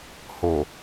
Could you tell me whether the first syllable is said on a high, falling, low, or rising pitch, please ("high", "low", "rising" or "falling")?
low